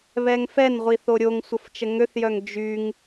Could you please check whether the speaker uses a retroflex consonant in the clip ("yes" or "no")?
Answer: no